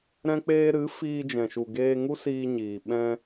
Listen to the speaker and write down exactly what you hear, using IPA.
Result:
ɾ ɛ̃˧ k͡p eː˧ ɾ ɨ˨˦ f iː˧ d͡ʒ ɛ̃˨ ʃ u˨ ɡ eː˧ ŋ u˦ s iː˧ ɲ iː˨ ɓ ɛ̃˧

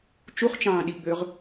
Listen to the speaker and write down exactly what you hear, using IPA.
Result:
t͡ʃ u χ t͡ʃ ɑ̃ː ɗ i ɡ͡b ø ʁ

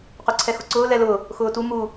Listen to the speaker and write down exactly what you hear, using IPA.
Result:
q ø ǀʰ ɛ x ʊ ǀ ʊː l ɛ l ʊː | x ʊː t u m u

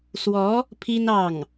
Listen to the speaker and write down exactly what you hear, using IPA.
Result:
s w ɔ˧˥ | pʰ i˥ n ɑ˥˩ ŋ

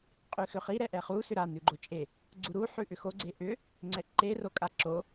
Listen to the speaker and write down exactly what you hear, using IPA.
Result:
qʼ ʉ x ʏ χ i ɾ ɛ ʔ ɛ χ u s ʏ ɾ a n ʉ ɡ͡ǃ o t͡ʃʼ e | ɡ͡ǀ u ɾ u ħ ʉ ʔ ʏ x o ɡ͡ǀ e ʔ ʏ | ŋ͡ǀ ɛ ǃ e r o kʼ a ǁ o

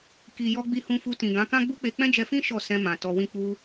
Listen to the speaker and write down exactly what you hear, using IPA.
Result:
k i˨ j ɔ˧ ɡ͡b i˧ h ũ˧ f u˧ t ĩ˨ ɡ ã˨˦ k ã˦ ɡ͡b u˦ k͡p e˧ k͡p ɛ̃˦ d͡ʒ ɛ˧ f ĩ˦ ʃ ɔ˦˨ s ɛ̃˧ m ã˨ t ɔ˧ w ĩ˦ k͡p u˧

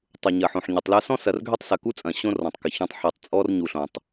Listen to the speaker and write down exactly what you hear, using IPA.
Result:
tˤ u˨ ɲ ɐ˨ ħ õ˨ ħ ɲ ʊ˨ tˤ l œ˦ s ɔ̃˦ s ɐ˨ r ɡʱ ø˦ tˤ s ɐ˨ k u˦ t͡sʼ ɐ̃˨ ɕ õ˦ r ɔ̃˨ tˤ k ɪ˨ ç œ̃˦ tˤ ħ ɛ˨ tˤ t͡sʼ ɔ˦ r ɲ u˨ ɬ õ˨ tˤ

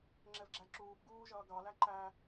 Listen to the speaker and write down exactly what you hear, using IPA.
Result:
ŋ͡ǁ ɛ v ɡ͡ǁ æ ǁ uː p ɡ uː ʒ ʌː ɡ ɑ l æ ǃ æ

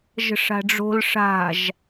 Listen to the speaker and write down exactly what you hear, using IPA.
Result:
ʒ ə̤ ʂ a̤ ɖ͡ʐ o̤ l ʂ a̤ ʒ

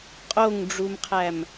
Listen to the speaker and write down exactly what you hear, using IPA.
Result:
qʼ o ŋ ɖ͡ʐ u m qʰ æ m

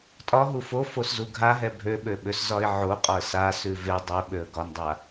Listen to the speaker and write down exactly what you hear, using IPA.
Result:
tʼ ɒ ɦ u f o f o s z u ɡʱ a ɦ ɛ bʱ ø ɓ ø ɓ ø s z ɒ ɪ̯ ʕ o qʼ ɒ ə̯ s a s ʉ v e dˤ ø ɓ ø ə̯ ɡ ɒ n dˤ a

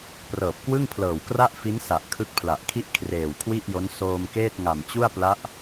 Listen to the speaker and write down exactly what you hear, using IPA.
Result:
p r ɤː˨˩ p̚ k w ɯ˥˩ ŋ pʰ l ɤː˨˩ w k r a˥˩ ʔ f i˦˥ n s a˨˩ ʔ kʰ ɯ˦˥ k̚ pʰ l a˨˩ ʔ kʰ i˥˩ ʔ kʰ r eː˨˩ w kʰ w i˥˩ ʔ j o˦˥ n s oː˧ m k eː˥˩ t̚ ŋ a˨˩ m t͡ɕ u˥˩ a̯ p l a˦˥ ʔ

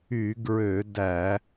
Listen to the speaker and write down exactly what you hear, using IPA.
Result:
y˧˩˧ ɡ ɹ ø˧˩˧ d æ˧˩˧

